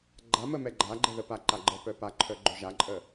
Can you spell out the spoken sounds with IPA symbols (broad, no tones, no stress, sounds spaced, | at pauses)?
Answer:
ɡ͡ǃ a m ə m ɛ ɡ͡ǃ a ɡ͡ǃ ɛ ð ə p a ǃ a ɡ͡ǃ ə p œ p a ǃʰ œ ɡ͡ǃ œ ʒ a ǃʼ ə